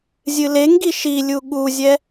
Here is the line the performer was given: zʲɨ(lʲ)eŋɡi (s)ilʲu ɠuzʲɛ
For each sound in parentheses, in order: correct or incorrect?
incorrect, incorrect

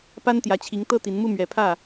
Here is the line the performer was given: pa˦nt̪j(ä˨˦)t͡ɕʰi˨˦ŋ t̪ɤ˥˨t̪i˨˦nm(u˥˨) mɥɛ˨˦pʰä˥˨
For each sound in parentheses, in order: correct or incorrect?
correct, correct

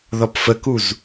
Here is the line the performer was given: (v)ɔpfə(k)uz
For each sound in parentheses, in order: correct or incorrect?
incorrect, correct

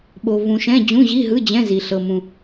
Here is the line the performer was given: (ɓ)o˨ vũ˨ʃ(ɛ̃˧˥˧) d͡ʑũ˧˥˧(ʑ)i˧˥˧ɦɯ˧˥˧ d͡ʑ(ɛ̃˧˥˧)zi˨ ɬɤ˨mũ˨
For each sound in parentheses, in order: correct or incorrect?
correct, correct, correct, correct

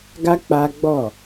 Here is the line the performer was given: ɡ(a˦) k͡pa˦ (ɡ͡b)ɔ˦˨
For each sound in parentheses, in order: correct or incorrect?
correct, correct

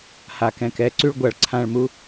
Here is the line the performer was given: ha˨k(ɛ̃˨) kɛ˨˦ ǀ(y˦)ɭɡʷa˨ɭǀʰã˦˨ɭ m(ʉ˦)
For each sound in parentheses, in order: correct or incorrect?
correct, correct, incorrect

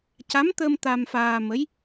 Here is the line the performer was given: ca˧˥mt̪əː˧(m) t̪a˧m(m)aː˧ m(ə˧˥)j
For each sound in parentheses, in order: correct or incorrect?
correct, incorrect, correct

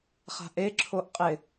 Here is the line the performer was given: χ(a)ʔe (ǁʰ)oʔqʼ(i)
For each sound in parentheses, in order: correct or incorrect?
incorrect, correct, incorrect

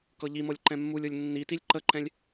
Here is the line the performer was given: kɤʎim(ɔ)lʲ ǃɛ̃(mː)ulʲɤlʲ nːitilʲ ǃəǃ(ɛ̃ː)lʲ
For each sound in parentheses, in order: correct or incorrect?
incorrect, correct, incorrect

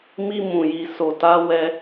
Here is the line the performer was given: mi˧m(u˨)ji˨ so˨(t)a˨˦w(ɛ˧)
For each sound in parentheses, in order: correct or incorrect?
incorrect, correct, correct

